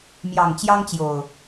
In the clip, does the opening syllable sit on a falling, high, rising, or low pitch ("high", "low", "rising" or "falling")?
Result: low